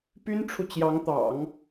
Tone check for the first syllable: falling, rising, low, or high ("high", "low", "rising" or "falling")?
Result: high